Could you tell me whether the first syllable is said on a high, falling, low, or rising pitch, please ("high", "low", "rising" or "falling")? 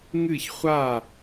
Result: falling